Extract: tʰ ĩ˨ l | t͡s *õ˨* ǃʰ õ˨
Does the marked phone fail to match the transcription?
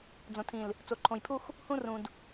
yes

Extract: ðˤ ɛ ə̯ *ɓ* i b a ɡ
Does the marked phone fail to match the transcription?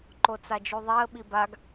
no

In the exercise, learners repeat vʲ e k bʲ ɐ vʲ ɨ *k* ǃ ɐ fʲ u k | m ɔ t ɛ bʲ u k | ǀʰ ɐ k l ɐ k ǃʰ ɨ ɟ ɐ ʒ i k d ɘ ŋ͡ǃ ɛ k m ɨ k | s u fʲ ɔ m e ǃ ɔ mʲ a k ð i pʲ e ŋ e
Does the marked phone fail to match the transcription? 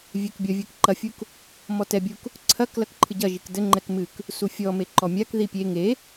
no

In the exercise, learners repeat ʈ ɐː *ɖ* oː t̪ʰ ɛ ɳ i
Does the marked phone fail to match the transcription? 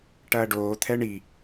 no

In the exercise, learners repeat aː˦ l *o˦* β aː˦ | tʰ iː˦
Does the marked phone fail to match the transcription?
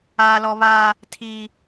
yes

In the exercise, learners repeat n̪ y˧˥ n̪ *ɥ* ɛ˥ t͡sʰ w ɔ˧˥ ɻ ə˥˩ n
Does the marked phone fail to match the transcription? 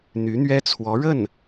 no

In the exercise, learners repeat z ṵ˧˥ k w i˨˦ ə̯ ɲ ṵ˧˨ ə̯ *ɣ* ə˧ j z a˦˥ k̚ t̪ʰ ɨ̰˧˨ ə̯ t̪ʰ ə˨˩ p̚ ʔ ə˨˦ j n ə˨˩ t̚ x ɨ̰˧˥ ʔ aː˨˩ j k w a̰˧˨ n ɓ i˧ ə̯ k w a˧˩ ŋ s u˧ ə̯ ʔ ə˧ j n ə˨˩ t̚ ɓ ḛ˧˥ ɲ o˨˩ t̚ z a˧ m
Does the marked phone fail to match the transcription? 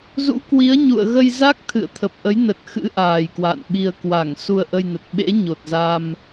no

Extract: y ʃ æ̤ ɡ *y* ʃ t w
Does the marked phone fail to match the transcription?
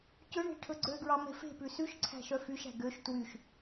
yes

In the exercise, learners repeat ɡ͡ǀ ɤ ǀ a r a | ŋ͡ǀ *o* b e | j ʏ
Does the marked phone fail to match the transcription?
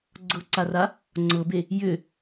yes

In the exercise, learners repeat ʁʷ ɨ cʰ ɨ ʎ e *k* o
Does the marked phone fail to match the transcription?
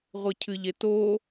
yes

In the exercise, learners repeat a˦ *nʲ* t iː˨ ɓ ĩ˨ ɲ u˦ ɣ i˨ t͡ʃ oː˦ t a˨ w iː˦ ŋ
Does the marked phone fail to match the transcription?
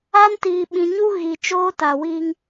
yes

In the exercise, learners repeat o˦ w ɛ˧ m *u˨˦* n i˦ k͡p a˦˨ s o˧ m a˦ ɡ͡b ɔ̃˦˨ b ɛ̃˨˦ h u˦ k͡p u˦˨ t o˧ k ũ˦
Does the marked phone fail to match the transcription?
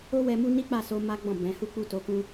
yes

